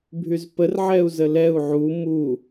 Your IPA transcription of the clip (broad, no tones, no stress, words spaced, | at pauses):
bʱyzpərʕɛu̯ zəlɛu̯ ʕu mu